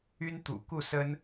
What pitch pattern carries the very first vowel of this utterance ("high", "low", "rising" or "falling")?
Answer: high